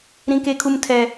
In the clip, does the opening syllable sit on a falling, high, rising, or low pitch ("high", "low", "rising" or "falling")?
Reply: high